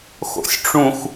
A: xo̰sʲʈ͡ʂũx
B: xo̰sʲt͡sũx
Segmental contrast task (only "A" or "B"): A